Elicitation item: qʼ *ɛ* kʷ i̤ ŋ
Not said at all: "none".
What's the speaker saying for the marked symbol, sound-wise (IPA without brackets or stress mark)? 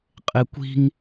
e